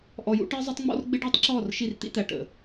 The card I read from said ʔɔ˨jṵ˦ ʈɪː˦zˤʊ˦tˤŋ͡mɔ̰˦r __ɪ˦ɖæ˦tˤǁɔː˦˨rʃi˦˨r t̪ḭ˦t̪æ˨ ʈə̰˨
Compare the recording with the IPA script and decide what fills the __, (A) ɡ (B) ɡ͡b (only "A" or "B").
B